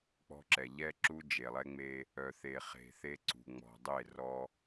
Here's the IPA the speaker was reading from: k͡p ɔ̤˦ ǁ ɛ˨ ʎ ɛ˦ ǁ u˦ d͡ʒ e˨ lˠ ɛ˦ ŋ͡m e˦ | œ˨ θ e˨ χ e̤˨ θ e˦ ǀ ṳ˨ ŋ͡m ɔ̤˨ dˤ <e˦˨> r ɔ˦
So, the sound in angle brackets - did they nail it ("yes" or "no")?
yes